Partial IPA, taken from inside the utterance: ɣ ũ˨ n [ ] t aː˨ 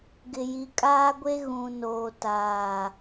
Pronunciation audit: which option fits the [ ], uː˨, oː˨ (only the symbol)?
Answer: oː˨